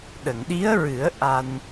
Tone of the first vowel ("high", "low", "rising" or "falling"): low